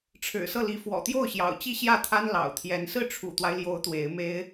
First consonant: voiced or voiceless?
voiceless